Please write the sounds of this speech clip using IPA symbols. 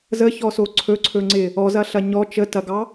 zəçɔso ǀʰɵǀʰɵŋ͡ǀɪ | ɔzɐɬɐ ɲɔ t͡ʃətɐɡɑ

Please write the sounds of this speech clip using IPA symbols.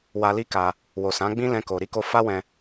wa˧li˦ka˧ | wo˨sã˨˦ɡ͡bĩ˦ lɛ̃˦ko˧ ɾi˦ko˧fa˦wɛ̃˧

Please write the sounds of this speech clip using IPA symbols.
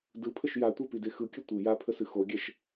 dɯpʰəʃ jatʷɛpide xɯkʲə tʷɯ japʰəsɨ xoɡʲɛʃ

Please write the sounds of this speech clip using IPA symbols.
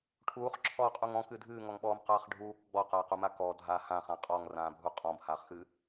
ʈʰuːχǁʰɔːqʼuŋ ɔ̃kɨ dʱɨːŋɔŋɓɔːmqaːχ ɖʱuːk ɡ͡bɔqaːquma kɔdʱaː hãχã qʼɔŋrãːbʱu qʼɔ̃bhaːχxɨ

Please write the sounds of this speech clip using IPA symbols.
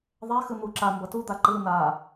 ðˤɛxɯ n̪u ǁa mbʌtud̪a ǃɯ n̪a

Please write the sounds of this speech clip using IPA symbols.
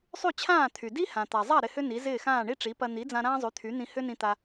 sˤy˥˩t͡ɕʰãː˥˩ t̪ʰy˩ di˥hã˩t̪a˩zˤa˥˩ ɾɪ˧hʏ˥ ni˩˥zɪː˥˩xãː˥˩ ɳi˥ʈ͡ʂi˩˥pɐ˧ n̪i˩˥d͡zã˧ ɾãː˥zˤy˩˥t̪ʰy˩˥n̪ĩ˧ hʏ˥nĩ˧t̪a˧

